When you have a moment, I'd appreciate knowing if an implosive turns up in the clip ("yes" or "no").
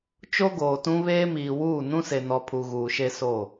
no